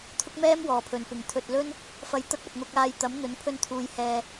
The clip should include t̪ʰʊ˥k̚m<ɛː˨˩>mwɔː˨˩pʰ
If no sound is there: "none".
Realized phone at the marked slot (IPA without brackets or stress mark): ɛː˥